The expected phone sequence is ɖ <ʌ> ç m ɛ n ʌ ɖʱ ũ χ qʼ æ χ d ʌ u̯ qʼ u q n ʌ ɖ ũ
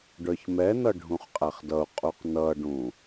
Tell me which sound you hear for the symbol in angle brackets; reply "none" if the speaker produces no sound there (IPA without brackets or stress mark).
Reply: ə˞